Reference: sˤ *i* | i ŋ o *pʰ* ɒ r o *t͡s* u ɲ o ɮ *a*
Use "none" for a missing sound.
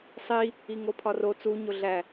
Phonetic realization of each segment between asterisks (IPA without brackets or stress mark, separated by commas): i, pʰ, t͡s, æ